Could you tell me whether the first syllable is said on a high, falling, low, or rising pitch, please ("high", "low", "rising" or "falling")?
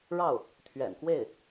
falling